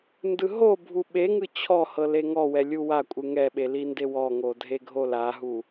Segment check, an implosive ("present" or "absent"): present